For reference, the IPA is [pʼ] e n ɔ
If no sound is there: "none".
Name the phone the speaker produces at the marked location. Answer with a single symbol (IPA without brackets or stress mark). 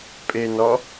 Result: pʼ